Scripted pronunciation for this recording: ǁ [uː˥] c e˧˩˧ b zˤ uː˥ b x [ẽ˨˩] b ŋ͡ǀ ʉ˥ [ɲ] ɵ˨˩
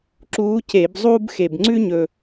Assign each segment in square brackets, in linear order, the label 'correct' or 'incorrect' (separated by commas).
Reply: incorrect, incorrect, correct